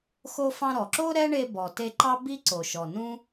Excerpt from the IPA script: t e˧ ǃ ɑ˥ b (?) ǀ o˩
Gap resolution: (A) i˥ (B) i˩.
A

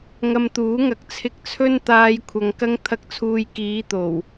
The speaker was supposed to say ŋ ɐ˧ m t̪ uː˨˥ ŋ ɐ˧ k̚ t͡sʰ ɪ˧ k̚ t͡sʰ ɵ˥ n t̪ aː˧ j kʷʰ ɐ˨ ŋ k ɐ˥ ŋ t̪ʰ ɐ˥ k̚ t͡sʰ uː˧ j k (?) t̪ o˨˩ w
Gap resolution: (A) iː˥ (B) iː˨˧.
B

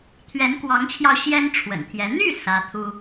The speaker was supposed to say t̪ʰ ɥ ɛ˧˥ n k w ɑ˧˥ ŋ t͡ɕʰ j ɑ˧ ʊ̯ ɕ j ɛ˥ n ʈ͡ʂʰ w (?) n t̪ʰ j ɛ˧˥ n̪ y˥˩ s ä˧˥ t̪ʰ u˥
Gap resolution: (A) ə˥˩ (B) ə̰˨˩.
B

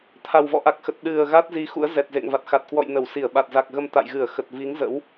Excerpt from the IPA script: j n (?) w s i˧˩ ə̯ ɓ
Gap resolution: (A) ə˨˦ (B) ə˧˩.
B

